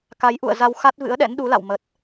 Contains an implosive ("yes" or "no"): yes